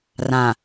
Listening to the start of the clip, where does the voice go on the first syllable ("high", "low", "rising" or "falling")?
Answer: low